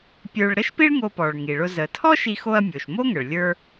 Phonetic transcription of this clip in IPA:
pʲ ə˞˧ ɭ ɾ ə˥ ʃ p i˥ ɭ ŋ o˧ p ɔ˩ ɭ ŋ i˩ ɭ ʊ˧ z ə˩ tʰ ɔ˥ ʃ i˧ x o˧ ɐ̯ mʲ o˩ ʃ m o˥ ŋ ə˩ ɭ lʲ ə˞˧

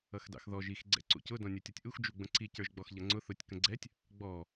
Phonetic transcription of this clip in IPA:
ʌ x d ɑ̰ x ð ɔ ʒ i x ɡ͡ǀ ɛ̰ ǀ ṵ c ʊ d ɔ̃ nʲ ə˞ tʲ ɔ tʲ ʔ u x d͡ʒ u ɡ͡b ə̃ ǀ i c ə˞ ʒ ɡ͡b ɔ x ʎ ʌ ŋ͡ǀ ʊ θ ʊ tʲ k ə̃ ɡ͡ǀ ɛ tʲ | ɡ͡b ɔ

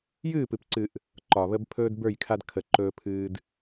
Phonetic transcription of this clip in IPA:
j ɨː˦˨ p ɨ˨ p ǀ ɨ˨ ʔ | ǃ ɒ˨ β ə˦ b pʰ ɵː˦ d b ə˞˦˨ j kʰ a˦ d kʰ ə˨ ǃ ɵː˦ pʰ ɨː˦ d

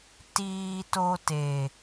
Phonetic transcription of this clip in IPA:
t iː˦ t o˦ t e˨

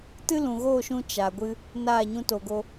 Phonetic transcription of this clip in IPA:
t ɨ˦ l ũ˨ ɣ oː˦˨ ʃ ũ˦ t͡ʃ a˨ ɡʷ ɨ˦ | n aː˦˨ ɲ ũ˧ t o˨ ɡ o˧

